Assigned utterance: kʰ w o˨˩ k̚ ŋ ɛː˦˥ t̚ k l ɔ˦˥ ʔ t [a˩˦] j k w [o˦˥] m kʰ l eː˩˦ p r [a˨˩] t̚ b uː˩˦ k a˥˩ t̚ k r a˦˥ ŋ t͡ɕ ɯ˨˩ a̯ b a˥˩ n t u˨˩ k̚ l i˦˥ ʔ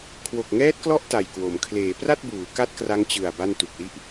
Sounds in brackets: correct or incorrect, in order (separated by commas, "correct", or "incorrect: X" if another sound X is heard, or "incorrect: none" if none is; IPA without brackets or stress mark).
incorrect: a˨˩, incorrect: o˩˦, incorrect: a˥˩